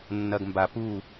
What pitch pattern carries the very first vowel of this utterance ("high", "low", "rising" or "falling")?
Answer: low